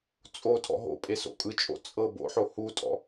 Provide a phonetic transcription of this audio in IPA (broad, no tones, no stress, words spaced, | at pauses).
t͡sʼo tʰɔ̰ɦo̰pʼe so̰kʼɯt͡ʃʼo̰ t͡sʼɤ bo̰ħo hutʼɔ̰